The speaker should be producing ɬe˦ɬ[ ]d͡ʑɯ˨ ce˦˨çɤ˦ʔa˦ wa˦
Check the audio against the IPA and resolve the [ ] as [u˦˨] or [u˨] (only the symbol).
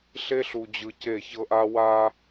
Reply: u˨